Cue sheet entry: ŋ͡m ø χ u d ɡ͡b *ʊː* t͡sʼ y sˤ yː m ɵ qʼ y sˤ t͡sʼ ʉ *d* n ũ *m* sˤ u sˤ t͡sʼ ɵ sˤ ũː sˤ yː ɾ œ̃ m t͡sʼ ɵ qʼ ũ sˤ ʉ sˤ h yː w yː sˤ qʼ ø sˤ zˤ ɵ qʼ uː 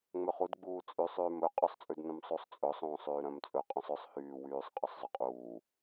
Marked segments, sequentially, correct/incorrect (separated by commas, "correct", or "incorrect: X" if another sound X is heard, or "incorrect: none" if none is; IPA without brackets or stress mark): incorrect: uː, correct, correct